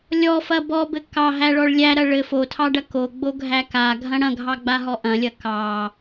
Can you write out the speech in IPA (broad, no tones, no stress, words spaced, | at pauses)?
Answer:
lʲɔfɐ bɔbɘ kɑɦæɭɔɭ lʲæɾɐ ɭɘ fotʰɑɖɐ koɡ͡boɡʱæ kaɡʱɐ̃ ɽɐ̃ɡʱɑɡ͡baɦɔ ʔɐ̃lʲɐ kɑ